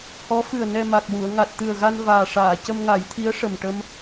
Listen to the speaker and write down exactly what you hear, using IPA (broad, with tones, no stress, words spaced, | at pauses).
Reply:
hɔ˧˥fɨ˨˩ə̯ nɛ˧ma˨˩k̚wu˨˩˨ə̯ ŋa˨˩t̚t̪ɨ˨˩ə̯ɣa˧n vaː˨˩ʂaː˨˩˨ cə˧mŋa˨˩˦jt̪ʰi˧˥ə̯ ʂə˨˩mʈə˧m